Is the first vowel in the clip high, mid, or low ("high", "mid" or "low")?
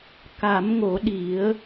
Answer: low